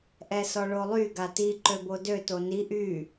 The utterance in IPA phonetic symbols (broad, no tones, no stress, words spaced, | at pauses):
ʔɛsɔɭolˠy ɡati ǃøbodø toni ʔy